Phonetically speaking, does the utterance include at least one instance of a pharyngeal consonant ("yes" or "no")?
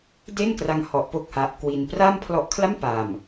no